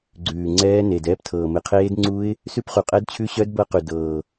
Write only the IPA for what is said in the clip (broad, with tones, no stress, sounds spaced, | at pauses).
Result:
ɡ͡ǀ ʉː˨˩ ŋ͡ǀ ɛː˦˥ n eː˨˩ d ɛː˦˥ p tʰ ɤː˨˩ m e˨˩ qʰ eː˦˥ d ŋ͡ǀ u˦˥ ɪ̯ | s ʉ˦˥ p χ u˨˩ qʼ ɛ˦˥ d t͡ɕʰ ʉ˦˥ ɕ œ˦˥ d b ɤ˦˥ q ʉ˨˩ d ɤː˨˩